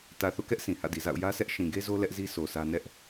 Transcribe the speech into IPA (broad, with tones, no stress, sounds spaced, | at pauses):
t ä˨ θ o̰˦˨ k ɛ˦ ʔ sʰ ĩ˨ h ä̰˦˨ d i˨ z a̰˦˨ ʊ̯ j ä˦ s ɛ˦ ʔ ʃ ĩ˨ ɡ e˦ z o˦ l ɛ˦ ʔ z i˦ s o˨ sʰ ä˦ n ɛ˦ ʔ